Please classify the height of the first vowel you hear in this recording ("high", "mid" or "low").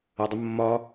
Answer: low